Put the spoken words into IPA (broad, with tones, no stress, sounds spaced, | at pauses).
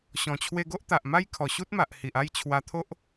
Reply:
ɕ ɔ̃˨˩ t͡ɕʰ w e˧ ɡ o˦ ʔ t̪ a˨ ʔ m a˦ j kʰ ɔ˨˩ ɕ u˦ t̚ m a˨ ʔ h i˨ ʔ a˥˧ j t͡ɕʰ w a˧ t̪ʰ o˦ ʔ